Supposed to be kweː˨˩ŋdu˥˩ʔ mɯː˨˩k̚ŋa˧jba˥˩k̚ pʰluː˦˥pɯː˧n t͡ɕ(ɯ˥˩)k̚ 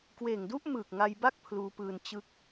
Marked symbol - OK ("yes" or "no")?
yes